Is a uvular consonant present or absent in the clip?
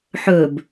absent